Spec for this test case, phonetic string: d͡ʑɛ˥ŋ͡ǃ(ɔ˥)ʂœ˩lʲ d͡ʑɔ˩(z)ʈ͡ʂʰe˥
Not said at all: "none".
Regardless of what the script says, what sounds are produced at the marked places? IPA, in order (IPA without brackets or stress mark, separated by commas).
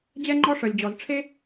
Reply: ɔ˥, z